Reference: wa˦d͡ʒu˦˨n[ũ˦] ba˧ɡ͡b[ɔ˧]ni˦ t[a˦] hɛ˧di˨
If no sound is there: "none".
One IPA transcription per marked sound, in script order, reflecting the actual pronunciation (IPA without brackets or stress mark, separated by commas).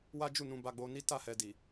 ũ˧, o˧, a˦˨